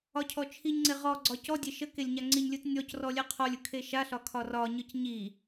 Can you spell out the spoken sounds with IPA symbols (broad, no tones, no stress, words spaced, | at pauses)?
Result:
ɒcʰɔt͡ʃʰiɲŋ͡ǀe ʁɔ ɡ͡ǀɒcɔdʲe ʃə kelʲɲaŋ͡ǀiɲlʲɯt nʲɔcrɔ lʲɛqʰɔlʲɯ kʰeʃaɬɒ kʰɒrɒɲɯc ɲi